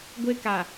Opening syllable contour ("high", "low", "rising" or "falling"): high